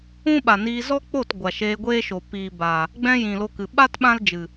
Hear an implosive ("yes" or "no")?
yes